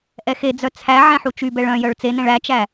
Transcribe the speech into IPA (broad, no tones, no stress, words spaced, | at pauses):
ʔɛxed͡zœ t͡sʰæ ʕɛ̃ħut͡ʃybɛɭ œ̃jœɭ t͡senɛ̃ɭ æt͡ʃæ